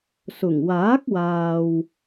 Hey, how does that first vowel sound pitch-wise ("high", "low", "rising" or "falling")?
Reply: low